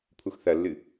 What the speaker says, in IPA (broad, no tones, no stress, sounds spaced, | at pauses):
pʰ u x θ ɐ lː ɨ